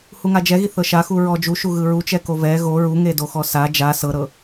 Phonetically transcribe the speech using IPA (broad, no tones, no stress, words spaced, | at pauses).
huŋad͡ʒɛɣi θɤʃaxu ɹɔd͡ʒuʃu ɣɯɹut͡ʃɛ kovɛ ɣo ɹuŋedoxɔ sa d͡ʒa sɤɾɤ